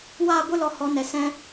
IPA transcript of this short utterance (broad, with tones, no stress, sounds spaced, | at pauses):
w aː˦˨ ɡʷ ɨ˦ l ɔ˨ h ɔ˨˦ n ɛ˨ s ɛ̃˦